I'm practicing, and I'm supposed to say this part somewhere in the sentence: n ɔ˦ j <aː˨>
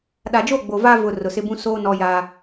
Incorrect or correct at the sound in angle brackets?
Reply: incorrect: aː˦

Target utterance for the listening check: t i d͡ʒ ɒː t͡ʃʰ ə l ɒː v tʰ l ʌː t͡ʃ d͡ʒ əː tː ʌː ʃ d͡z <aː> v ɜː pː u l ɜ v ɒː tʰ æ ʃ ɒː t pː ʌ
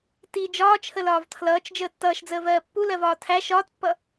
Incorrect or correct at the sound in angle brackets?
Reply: incorrect: əː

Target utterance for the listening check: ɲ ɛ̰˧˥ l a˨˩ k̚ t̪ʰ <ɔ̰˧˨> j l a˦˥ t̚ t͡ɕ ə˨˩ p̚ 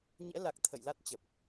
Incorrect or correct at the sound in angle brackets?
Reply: incorrect: ə̰˧˨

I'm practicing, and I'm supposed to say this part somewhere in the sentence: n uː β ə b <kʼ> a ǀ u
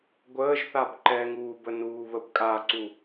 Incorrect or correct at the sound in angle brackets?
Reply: correct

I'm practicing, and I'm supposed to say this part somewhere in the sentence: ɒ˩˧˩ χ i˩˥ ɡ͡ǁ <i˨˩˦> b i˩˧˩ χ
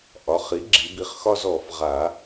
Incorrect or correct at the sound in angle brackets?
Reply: correct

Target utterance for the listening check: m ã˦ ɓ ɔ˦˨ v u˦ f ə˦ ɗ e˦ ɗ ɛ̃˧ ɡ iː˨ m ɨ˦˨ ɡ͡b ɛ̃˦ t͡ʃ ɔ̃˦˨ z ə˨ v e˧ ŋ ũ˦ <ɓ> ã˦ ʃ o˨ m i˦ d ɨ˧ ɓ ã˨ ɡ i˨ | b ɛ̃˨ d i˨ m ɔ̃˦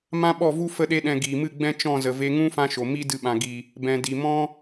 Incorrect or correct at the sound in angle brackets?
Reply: incorrect: f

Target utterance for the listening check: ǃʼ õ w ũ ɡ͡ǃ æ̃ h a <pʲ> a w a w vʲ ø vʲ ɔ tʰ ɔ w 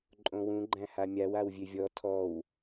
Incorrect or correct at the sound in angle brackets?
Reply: incorrect: mʲ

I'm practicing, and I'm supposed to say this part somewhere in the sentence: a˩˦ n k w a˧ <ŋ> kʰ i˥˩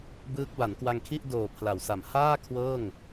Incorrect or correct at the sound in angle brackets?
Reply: correct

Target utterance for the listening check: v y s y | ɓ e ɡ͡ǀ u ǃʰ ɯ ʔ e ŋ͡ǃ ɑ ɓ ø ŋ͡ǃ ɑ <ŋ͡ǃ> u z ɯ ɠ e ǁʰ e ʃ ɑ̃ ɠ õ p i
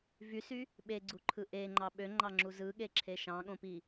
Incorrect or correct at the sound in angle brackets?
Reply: incorrect: ŋ͡ǁ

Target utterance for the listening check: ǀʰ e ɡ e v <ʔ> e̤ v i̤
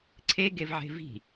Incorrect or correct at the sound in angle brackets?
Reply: incorrect: ʕ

